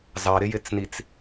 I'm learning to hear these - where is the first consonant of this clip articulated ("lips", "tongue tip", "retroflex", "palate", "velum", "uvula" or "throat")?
tongue tip